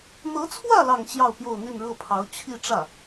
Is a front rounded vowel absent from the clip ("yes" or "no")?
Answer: no